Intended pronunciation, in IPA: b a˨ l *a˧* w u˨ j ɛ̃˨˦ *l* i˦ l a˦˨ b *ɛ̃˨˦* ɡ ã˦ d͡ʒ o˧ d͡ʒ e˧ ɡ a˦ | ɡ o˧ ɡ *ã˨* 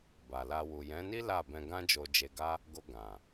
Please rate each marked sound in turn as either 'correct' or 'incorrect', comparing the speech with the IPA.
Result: correct, incorrect, incorrect, correct

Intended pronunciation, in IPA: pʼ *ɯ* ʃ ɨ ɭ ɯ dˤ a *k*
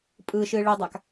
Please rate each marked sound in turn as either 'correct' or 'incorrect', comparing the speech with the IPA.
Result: correct, correct

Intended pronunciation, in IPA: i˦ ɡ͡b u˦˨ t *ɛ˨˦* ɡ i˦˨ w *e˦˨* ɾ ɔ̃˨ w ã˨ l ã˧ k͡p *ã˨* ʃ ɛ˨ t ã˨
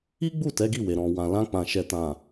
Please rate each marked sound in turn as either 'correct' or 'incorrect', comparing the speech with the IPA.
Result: correct, incorrect, correct

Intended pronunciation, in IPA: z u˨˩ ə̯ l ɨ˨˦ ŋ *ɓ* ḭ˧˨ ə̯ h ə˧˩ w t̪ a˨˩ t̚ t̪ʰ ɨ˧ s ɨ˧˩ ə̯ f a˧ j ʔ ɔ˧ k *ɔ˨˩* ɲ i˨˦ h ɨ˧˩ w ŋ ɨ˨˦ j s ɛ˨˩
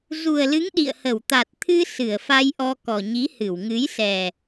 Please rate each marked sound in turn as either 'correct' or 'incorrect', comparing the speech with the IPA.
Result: incorrect, correct

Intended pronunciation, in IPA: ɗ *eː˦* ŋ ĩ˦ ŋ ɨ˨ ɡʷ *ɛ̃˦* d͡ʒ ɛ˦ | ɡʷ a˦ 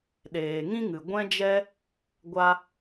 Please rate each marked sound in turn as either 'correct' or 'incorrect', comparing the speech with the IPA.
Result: incorrect, correct

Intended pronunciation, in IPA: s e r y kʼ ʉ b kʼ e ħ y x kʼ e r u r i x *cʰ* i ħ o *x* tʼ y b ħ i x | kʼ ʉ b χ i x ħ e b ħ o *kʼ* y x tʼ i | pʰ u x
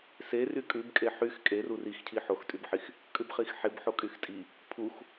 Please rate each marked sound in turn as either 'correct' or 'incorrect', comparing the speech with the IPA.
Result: correct, correct, correct

